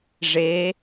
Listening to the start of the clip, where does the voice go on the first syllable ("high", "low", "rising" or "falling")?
rising